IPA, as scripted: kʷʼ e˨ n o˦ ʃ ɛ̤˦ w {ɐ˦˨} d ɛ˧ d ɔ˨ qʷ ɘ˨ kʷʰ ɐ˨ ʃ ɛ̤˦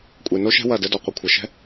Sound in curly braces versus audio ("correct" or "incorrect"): correct